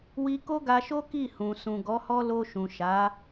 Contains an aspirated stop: no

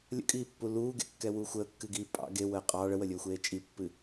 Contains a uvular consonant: yes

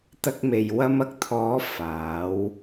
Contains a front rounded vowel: no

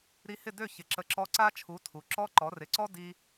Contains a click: yes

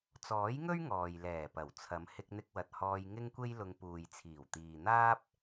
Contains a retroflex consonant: no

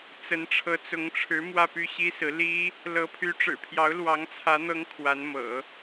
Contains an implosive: no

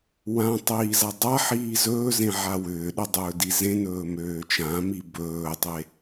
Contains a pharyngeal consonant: yes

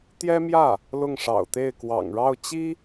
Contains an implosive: no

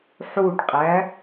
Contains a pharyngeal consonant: yes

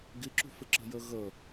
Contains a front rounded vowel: no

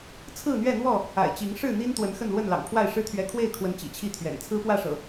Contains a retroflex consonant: yes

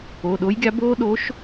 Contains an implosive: yes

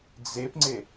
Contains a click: yes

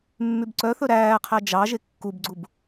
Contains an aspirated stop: yes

